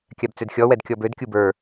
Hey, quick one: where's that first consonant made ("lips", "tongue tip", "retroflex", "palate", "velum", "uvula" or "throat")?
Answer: velum